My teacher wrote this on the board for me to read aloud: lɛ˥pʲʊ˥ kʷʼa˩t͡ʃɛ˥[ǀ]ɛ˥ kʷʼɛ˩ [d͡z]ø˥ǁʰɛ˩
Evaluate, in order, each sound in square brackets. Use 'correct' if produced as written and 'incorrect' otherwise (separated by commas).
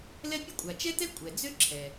incorrect, correct